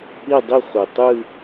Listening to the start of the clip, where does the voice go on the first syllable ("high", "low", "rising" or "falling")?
falling